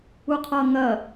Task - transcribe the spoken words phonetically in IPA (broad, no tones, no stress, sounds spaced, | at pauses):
u qʰ ʌ ŋ ɐ